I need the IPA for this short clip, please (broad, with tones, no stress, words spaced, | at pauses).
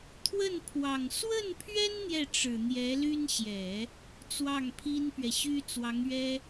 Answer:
t̪ʰwə˥˩npʰwɑ˨˩ŋ swə˥˩npʰɥɛ˥n n̪jɛ˥˩ ʈ͡ʂɻ̩˨˩n̪jɛ˧˥ly˥n ɕjɛ˨˩˦ | t͡swɑ˥˩ŋpʰi˥npɥɛ˨ɕy˥ t͡swɑ˧˥ŋɥɛ˥